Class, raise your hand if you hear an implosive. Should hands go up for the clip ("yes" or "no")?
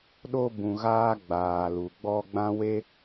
yes